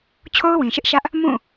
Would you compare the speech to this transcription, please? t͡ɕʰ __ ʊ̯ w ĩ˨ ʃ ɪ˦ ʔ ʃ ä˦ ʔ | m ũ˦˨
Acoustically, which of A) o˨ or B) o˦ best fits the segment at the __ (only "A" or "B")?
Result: B